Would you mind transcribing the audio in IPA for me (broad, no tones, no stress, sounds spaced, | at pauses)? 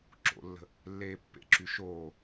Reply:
ǁ o̰ lː ə̤ | lː eː pː ḛ ǁ y ʃ oː